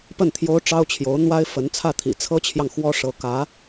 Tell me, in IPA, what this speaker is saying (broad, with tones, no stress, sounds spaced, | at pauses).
p ə˥˩ n t̪ʰ j o˥ ʊ̯ ʈ͡ʂ ɑ˥ ʊ̯ t͡ɕʰ j o˧˥ ʊ̯ n̪ w a˥ ɪ̯ f ə˧˥ n t͡sʰ ä˥˩ t̪ʰ ḭ˨˩ t͡sʰ ɤ˥ t͡ɕʰ j ɑ˨ ŋ x w ɔ˥ ʂ ɤ˧˥ k ä˧˥